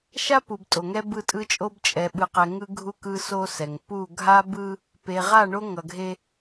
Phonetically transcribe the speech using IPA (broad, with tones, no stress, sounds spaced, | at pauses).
ʃ a˦ p u˨ b tʼ o˨ ŋ ɛ˦ b ɯ˦˨ tʼ ɯ˦ t͡ʃʼ o˦ b t͡ʃʼ ɛ˨ ɓ ɯ˨ q ɛ˨ ŋ ɯ˦ ɡʱ u˦ k ɯ˦ s o˦ s ɛ˨ ŋ p u˦˨ ɡʱ a˦ b ɯ˦ | p e˨ ʁ a˦˨ ɳ o˦ ŋ ʌ˨ ɡʱ e˦